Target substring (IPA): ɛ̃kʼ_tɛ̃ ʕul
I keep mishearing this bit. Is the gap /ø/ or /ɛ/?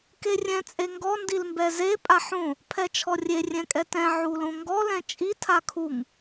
ɛ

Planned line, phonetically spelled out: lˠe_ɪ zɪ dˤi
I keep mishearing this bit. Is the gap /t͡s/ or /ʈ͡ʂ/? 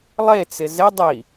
t͡s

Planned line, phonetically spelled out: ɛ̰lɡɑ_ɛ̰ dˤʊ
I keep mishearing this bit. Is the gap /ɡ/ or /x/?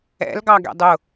ɡ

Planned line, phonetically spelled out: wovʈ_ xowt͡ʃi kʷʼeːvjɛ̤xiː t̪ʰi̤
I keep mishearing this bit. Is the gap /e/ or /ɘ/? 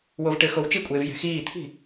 ɘ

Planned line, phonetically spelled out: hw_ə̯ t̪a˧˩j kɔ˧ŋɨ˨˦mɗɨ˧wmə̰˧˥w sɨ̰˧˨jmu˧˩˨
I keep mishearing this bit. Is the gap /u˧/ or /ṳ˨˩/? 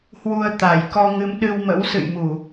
u˧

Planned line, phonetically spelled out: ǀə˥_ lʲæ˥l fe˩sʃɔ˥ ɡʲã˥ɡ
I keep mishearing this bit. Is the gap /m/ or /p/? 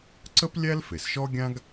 p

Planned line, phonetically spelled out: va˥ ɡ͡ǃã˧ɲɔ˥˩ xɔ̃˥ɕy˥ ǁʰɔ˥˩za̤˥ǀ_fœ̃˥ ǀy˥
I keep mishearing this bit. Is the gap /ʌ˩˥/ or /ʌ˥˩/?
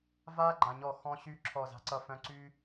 ʌ˥˩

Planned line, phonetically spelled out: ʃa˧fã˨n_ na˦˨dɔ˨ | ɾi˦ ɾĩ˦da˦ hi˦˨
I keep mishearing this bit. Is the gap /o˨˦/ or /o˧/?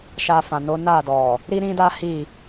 o˨˦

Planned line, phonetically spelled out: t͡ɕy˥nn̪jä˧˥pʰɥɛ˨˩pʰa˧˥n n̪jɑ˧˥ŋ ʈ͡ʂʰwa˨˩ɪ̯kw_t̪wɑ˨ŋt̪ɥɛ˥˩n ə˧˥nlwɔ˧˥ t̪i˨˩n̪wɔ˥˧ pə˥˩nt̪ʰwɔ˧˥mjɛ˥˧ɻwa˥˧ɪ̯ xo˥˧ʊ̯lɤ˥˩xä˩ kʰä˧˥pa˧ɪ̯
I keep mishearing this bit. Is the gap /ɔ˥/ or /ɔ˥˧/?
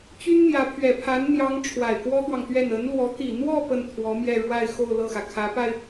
ɔ˥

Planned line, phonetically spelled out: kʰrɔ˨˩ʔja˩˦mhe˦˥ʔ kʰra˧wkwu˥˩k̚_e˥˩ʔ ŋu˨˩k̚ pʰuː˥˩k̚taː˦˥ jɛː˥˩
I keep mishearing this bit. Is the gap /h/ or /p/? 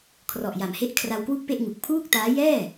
p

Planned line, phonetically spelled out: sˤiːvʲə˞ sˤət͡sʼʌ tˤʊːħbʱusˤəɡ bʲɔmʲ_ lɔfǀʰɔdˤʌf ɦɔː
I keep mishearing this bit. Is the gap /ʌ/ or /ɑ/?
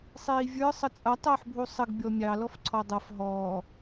ɑ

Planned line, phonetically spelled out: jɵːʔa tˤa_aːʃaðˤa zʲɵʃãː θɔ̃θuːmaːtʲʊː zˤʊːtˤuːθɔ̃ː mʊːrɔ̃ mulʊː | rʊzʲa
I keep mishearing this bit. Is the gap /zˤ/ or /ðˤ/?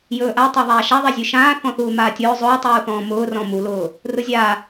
ðˤ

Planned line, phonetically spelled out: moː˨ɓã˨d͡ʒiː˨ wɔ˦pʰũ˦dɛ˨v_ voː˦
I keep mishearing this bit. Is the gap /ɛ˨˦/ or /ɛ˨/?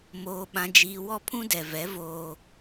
ɛ˨˦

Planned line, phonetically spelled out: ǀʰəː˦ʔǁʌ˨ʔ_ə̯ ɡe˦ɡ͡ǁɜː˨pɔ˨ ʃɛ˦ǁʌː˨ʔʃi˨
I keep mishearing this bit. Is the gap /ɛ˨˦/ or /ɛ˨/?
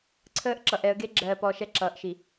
ɛ˨˦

